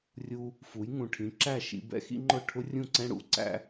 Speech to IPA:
rʲ u˧ | f u˩˥ j ŋ ũ˩ ʈʰ ĩ˩˥ ǁ æ˥˩ ʃ ḭ˧ b ɛ̰˥ x ḭ˥ ŋ͡ǃ ʊ˥˩ ʈʰ ʊ˥ rʲ ũ˥˩ ǀ ɛ̃˥ ɽ ṵ˧ ǀ æ̰˥

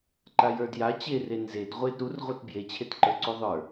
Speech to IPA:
ǃ a j ə˞ d j a t͡ɕ e r e n z e d ʁʷ e d ɾ u r ʁʷ ə˞ t b j e t͡ɕʰ e t ǃ ə˞ ǀ u ðˤ ə˞

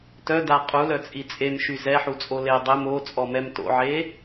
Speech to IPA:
t œ d a qʼ u l œ t͡sʼ i t͡sʼ e m ʃ y z ɛ ħ u t͡sʼ o l e dˤ ɛ m o t͡sʼ ɔ m ɛ m t o̰ ʕ e

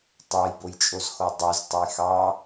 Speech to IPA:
tˤ ɑ j b o j t͡ʃʼ o z x ɔ dˤ o z tˤ ə j x ɑ

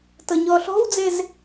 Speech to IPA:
t ɤ ɲ ɔ ɬ ɔ̤ w d͡z e z

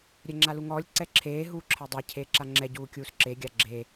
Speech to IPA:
ɾʲ ɛ ŋ͡ǁ a l u ŋ ɔː lʲ ǀ ɛ ǁʰ eː ɦ uː ǁʰ ɜ dˤ a cʰ eː ǁ a ŋ͡ǁ ɛ ɟ uː kʲ uː s ǁ e ɡʲ a ɡ͡ǁ e

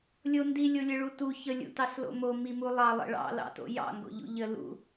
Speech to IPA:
lʲ o n d i lʲ o lʲ ə ɭ u t u ç ə lʲ ṵ t ɑ ɬ l o̰ m o m i m u lˠ ɑ lˠ ə̰ ɭ ɑ̰ l ɑ̰ t o̰ j ɑ̰ ŋ ɡ o̰ ʎ ṵ ʎ ə l ṵ

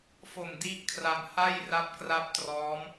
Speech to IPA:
f o˨˩ m d i˦˥ ʔ kʰ r a˧ m h a˥˩ j r a˦˥ p̚ k r a˦˥ p̚ t r ɔː˦˥ m

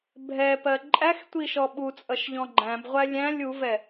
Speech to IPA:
bʱ ɛ p ɜ ǃʼ æ x tʷ i ʃ ɔ ɓ u t͡sʼ ʌ ʃ ʎ ɔ̃ ɡ͡ǃ æ̃ b ʁʷ æ lʲ æ̃ lʲ u v ɛ

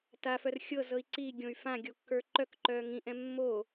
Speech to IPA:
t a f œ r xʲ ɤ z ɤ i̯ ǀ i ɡʲ õ y̯ f ã ɡʲ o kː ə˞ ǃ œ k ǃ œː ŋ ĩ ʔ ɛ̃ mː o

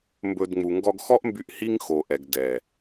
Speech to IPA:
m b ɵ˧ d ŋ͡m u˨ ŋ ɡ ɔ˧ ɡ x ɔ˦ ʔ m b y˧ ʔ h i˦ ŋ x o˨ ʔ ɛ˨ ɡ d ɛ˨

